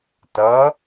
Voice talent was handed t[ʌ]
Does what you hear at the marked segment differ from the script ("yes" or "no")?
no